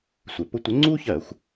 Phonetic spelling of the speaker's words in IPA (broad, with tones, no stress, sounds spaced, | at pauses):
sʷ e˨˩ p ʊ˥ tʷ ɘ˨˦ ŋ͡ǀ u˥ ç ɜ˧˩˧ xʷ